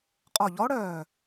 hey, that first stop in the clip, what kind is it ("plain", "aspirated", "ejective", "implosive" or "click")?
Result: ejective